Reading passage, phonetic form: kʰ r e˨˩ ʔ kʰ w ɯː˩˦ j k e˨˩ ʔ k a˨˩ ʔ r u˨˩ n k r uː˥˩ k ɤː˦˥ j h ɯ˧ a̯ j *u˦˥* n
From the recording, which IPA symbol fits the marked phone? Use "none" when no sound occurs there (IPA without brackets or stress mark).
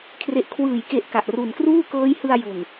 u˨˩